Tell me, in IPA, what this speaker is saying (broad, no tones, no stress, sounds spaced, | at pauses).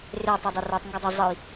r e tˤ ɛ dˤ e r ə˞ tˤ ŋ ɡ ʌ dˤ ə zˤ ə j